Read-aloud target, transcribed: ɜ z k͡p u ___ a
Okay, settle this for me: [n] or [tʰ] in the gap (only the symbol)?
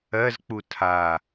tʰ